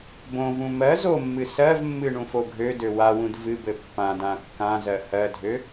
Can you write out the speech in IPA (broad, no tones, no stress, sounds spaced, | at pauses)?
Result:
b õ v ũ m ɜ z o mː ɨ s ɜ v mː ɨ ɳ ũ f o ɡʱ ø d ø w a w ũ d v ɨ b ɘ pː ã d ã kː ã z ɜ h ɜ dʱ ø